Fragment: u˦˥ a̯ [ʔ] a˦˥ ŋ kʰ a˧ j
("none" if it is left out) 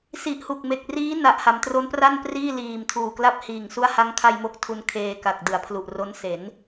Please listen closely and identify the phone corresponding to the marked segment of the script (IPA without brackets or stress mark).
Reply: h